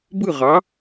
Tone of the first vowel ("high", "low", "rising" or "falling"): falling